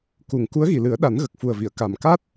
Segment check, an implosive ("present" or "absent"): present